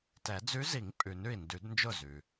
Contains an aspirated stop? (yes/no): no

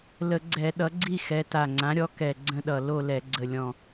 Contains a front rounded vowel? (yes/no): no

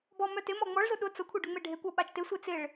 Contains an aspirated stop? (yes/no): yes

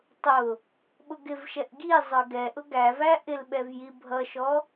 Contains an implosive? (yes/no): yes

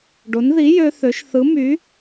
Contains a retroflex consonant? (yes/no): yes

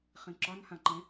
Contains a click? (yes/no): yes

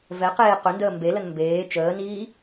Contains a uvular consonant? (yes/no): yes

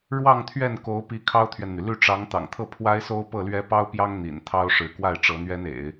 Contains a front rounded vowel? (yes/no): yes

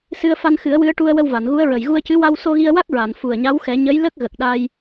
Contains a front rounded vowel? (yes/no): no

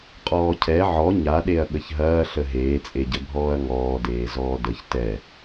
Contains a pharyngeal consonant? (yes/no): yes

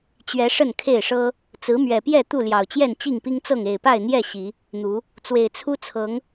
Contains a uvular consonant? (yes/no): no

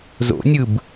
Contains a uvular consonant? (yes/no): no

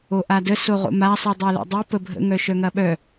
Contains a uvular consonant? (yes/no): yes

